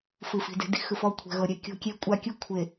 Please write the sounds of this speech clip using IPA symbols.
fɯ˨fi̤˨ de̤˨di̤˦xɯ˨f ɔ˦˨kʷʰɛ̤˨ɣɤ˨ɾʲɛ˨ kʲo̤˦kʲe˦ kʷʼa˦kʲɯ˦ kʷʰe˨

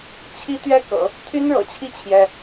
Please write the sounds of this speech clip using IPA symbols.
t͡ɕʰi˥t̪ɥɛ˥kɤ̰˨˩˦ | t̪ʰy˥nɻɤ̰˨˩t͡ɕʰi˥˩ t͡ɕʰjɛ˥

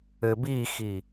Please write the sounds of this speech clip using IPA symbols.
ɘbixi

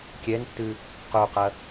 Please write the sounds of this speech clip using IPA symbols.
kʲɛntːɨ | quqɐ

